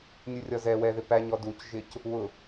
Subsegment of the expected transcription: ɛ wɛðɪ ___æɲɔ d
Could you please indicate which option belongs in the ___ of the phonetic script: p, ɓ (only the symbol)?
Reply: p